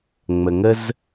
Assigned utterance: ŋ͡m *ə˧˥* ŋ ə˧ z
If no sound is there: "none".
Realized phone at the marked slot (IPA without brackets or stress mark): ə˩